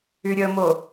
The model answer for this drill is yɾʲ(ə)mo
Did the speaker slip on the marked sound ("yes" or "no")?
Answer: no